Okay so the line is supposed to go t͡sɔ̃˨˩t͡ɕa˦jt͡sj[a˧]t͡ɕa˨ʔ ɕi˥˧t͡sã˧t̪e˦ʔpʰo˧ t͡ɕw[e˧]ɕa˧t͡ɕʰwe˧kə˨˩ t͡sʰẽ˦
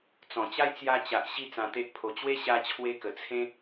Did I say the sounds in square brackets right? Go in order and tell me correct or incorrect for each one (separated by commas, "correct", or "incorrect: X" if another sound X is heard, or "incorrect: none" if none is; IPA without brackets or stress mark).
correct, incorrect: e˦